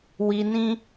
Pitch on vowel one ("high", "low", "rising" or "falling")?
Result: low